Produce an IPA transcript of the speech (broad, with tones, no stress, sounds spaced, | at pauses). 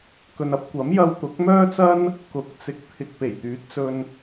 k ɵ˨ n ɐ˨˥ p̚ kʷ ɐ˨˥ m j ɐ˧ w t̪ ʊ˨˥ k̚ m œː˥ t͡s ɐ˥ n | k ʊ˨˥ k̚ t͡s ɪ˨˥ k̚ t̪ʰ ɪ˨ k̚ p e˨˩ j t̪ yː˨˥ t̚ t͡s ɵ˧ n